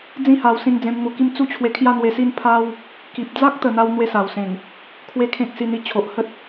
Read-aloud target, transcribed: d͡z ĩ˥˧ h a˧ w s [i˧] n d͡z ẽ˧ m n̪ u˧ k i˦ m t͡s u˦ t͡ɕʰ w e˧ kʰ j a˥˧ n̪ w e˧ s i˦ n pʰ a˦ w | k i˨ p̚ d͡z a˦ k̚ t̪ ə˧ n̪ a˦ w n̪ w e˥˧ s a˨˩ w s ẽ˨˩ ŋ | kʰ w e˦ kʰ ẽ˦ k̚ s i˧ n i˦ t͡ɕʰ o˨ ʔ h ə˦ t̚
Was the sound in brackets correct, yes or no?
no